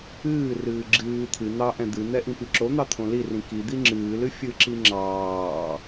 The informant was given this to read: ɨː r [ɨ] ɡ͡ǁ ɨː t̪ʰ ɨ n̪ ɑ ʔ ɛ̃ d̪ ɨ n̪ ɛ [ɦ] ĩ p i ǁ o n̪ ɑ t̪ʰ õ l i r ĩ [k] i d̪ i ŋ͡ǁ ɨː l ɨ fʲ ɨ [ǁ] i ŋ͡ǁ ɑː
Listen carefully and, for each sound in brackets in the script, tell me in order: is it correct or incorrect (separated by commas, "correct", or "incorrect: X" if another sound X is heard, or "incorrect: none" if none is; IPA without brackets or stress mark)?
incorrect: ɨː, incorrect: ʔ, correct, correct